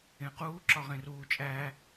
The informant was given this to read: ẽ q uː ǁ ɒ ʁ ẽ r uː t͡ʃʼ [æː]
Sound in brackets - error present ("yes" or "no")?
no